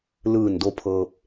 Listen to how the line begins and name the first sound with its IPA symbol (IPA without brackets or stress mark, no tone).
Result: l